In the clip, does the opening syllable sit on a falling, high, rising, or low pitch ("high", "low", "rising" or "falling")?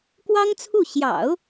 high